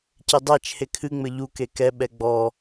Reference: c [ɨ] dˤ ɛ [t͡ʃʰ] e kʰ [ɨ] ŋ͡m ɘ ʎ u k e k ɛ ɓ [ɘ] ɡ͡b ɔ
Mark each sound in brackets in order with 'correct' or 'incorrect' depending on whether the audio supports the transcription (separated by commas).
incorrect, correct, correct, incorrect